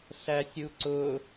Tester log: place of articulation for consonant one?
alveolar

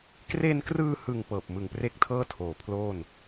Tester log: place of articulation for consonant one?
velar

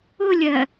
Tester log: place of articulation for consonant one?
alveolar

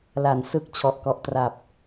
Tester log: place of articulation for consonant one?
alveolar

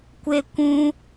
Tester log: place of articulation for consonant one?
velar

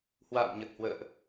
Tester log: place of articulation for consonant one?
glottal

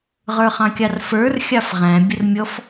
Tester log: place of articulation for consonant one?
uvular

